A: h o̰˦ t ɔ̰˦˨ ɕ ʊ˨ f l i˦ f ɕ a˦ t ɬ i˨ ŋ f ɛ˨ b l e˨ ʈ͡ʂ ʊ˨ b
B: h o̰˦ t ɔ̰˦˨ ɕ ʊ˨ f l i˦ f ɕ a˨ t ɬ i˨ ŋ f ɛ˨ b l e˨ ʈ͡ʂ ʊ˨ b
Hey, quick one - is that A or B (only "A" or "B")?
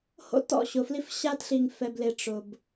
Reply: A